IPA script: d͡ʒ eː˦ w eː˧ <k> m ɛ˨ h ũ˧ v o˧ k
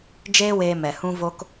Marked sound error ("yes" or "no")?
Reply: yes